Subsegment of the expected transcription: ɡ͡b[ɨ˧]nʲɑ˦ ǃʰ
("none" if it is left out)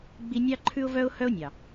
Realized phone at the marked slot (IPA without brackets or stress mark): i˧